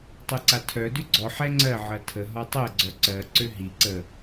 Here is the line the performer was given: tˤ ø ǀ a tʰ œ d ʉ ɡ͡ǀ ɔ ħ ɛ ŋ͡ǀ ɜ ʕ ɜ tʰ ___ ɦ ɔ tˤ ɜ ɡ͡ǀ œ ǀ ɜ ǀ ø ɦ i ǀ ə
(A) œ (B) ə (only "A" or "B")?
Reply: B